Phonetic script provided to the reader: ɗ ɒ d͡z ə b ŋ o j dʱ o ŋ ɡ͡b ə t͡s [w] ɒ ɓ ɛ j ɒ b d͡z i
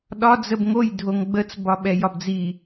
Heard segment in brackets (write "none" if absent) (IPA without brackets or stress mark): b